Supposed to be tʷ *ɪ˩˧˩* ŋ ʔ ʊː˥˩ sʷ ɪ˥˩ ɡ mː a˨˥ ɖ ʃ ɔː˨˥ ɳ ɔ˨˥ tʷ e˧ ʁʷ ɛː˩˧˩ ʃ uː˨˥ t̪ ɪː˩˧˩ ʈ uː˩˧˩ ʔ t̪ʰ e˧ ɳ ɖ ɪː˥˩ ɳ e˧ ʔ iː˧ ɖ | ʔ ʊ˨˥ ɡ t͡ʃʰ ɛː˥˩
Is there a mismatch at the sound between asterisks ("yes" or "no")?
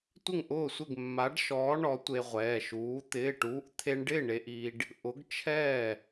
yes